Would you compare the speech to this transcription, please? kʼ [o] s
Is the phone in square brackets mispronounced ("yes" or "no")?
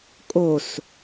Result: no